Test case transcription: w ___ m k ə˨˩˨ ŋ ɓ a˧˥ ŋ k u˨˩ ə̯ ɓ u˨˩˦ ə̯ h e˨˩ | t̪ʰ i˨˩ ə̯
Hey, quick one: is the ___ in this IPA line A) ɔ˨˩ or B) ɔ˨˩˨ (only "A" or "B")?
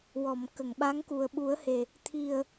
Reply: B